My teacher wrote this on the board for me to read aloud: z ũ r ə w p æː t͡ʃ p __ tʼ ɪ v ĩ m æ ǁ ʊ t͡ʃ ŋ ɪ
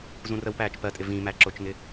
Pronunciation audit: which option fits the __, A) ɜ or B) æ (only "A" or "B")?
A